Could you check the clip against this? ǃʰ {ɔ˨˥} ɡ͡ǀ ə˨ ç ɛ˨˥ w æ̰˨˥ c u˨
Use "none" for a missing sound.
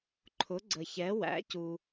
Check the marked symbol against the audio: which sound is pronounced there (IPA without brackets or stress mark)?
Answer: ʊ˨˥